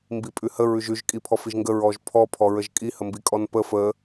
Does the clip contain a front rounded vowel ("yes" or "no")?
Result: no